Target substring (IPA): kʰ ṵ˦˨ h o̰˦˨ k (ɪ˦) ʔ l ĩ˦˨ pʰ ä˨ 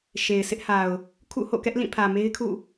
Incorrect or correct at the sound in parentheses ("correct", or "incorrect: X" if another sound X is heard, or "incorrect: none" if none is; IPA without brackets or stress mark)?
incorrect: ɛ˦